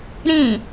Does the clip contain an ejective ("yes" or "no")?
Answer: no